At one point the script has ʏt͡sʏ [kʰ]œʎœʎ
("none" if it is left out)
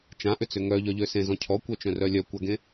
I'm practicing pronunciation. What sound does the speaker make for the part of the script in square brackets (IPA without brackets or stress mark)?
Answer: ŋ